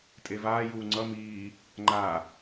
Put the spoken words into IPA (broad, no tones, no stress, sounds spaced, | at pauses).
tʼ e v aː j uː ŋ͡ǀ ʌ m iː | ŋ͡ǃ a